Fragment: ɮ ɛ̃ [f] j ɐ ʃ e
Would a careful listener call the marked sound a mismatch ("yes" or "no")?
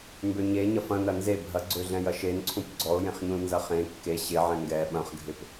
yes